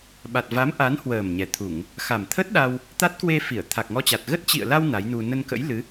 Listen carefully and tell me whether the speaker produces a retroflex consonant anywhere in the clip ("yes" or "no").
no